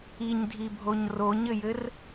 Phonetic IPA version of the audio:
iɲdʱibʱoɲ roɲɘjɘr

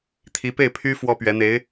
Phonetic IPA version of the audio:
t̪ʰi˧˥pe˥˩ɪ̯pʰy˥ fwɔ˥pɥɛ˧˥n̪e˧˥ɪ̯

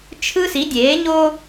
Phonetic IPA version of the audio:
t͡ʃʰɯ˦ si˨˦dʲeː˨˦ɲo˦

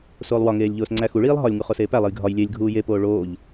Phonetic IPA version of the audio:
soːlˠwɒŋeːlʲ ʎoːsŋ͡ǀæxuɭiːlˠ ɦɒlʲŋu χoseːpælˠej ɡʱɒj lʲelʲ ɡʱuːjepoː ɭoːʎ

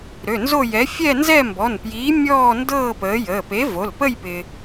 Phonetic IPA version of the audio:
ɾø˩˧˩nzo˥˧jɛ˨˥ fʲɛ˥˧nzɛ˥˧mbɔ˩˧˩npjiː˨˥ mʲɔː˥˧ndɤː˥˧ pəː˨˥jəː˩˧˩ pe˨˥vo˩˧˩lpə˥˧j pɪ˧

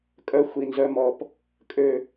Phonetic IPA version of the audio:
kʼœ˦ xʷi˨nzœ˦mɔ˦p | kʼø˦

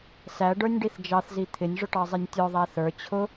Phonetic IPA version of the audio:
sæɖə˞nʲ ɖiθd͡ʒɑθzi t̪ʰɪnʲ ʐʊʈɑzˤinʲtʲɔ ðˤæθə˞ t͡ɕʰʊ

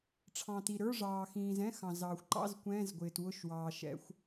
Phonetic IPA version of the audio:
ʈ͡ʂʰɑ̃˩ ti˩ɾə˞˧˥˧ ʐɑː˩xĩː˩zɛ̃˧˥˧ xɑ̃˩zɑː˩xʷǃɑ̰˧˥˧z kʷɛ̃ː˧˥˧zɡʷɪː˩twʊ˧˥˧ʃwɑː˩ ʃɛ̰˧˥˧xʷ

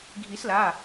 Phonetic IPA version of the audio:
ɡʱi˨˩˦sla˩˧˩

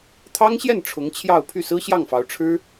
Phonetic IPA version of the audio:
t̪ʰɑ˥ŋɕjɛ˥˩n ʈ͡ʂʰʊ˧˥ŋt͡ɕʰjɑ˥˧ʊ̯ pʰy˥˩sɹ̩˥ɕjɑ˥˩ŋfɑ˧˥ʊ̯ ʈ͡ʂʰɻ̩˥

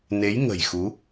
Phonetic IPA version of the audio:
ne˨˦jŋə̤˨˩j xu˨˦

